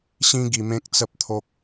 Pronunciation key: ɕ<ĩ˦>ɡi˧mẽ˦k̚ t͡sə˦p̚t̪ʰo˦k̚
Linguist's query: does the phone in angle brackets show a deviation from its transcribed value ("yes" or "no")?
no